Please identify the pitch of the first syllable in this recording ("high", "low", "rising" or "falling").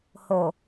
low